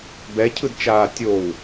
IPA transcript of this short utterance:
bɛcʰɯdt͡ʃaː tʲow

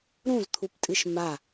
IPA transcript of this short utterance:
ɾũzt̪ʰuptʼɨʃ ma

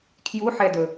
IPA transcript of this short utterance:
kʰjuħɛdɵ

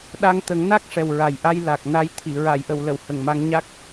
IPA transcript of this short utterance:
ɗa˧ŋt̪ə˨˩˦ŋ na˦˥k̚ʂɛ˨˩w ɹa˨˩jʔa˧j la˨˩k̚ na˧jt̪ʰi˨˩˨ ɹa˨˩˨jʔə˨˩˨wlə˨˩˨w hə˨˩ŋma˧ŋ ɲa˦˥k̚

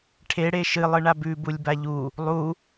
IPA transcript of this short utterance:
ʈʰe ɽeʃɨlˠ ɨɳabʉ bulʲbaʎu | lˠu

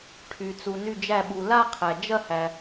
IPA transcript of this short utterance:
ʈʰy˩ t͡su˩ny˧˩d͡ʒæ˧˩ɓu˩ la˥˧qʰæ˩ d͡ʒɐ˥˧hæ˩

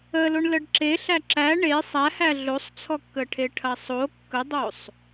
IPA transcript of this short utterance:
əloɳ ləɖǁe ɬæǁæ ɳe sˤæhæ ɮosˤt͡sʰɔkːəʈʰe ʈʰɐsˤo kːədˤosˤ

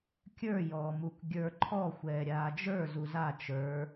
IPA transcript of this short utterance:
kʲə˞ jɔːmuk ɡʲə˞ ǃʰɔ xʷɛːɾʲaːd͡ʒə˞ zuza t͡ʃə˞

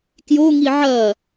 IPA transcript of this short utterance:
kjoŋi ʕɐ

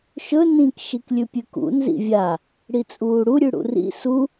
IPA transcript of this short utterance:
ʃɵ nĩk ʃiklʲʉpʲʉkṵ nzḭvʲa | ɽit͡sʼuːɽu ɾʲʉɽṵrḭ su

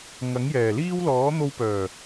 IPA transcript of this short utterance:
ŋɐ˨˥ŋjɛː˨˩liː˥w lɔː˨˥n̪o˧wpœː˨˩

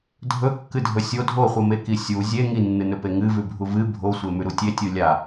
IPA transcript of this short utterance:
dʱɵkːɨdʱɵ sʲo dʱoχʷɨmeki sʲu zʲe ŋinːɨnɵpe ŋɨvʉbʱu vɨ bʱosʷemʉɾu tʲetʲu lʲa

